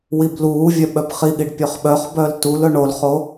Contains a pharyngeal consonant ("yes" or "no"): no